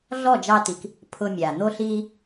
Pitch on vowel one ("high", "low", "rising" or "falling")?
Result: falling